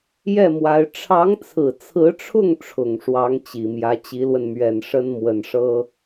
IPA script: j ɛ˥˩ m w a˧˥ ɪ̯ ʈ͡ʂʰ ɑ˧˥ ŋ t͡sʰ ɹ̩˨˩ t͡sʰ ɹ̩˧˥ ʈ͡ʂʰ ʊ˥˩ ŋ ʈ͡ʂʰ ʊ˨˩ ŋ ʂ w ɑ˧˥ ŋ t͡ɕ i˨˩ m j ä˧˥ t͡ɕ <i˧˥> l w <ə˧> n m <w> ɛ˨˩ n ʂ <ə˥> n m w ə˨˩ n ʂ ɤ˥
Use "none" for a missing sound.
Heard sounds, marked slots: i˧˥, ə˧, ɥ, ə˥

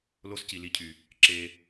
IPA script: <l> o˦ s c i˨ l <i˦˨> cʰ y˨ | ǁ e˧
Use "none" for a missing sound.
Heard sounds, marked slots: l, i˦˨

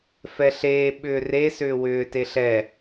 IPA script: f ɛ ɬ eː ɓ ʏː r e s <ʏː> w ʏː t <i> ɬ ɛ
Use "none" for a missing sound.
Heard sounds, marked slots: ʏː, e

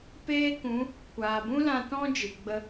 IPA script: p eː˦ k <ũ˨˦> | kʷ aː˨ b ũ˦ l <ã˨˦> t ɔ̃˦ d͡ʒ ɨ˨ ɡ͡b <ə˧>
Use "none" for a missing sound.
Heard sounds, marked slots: ũ˨˦, ã˧, ə˧

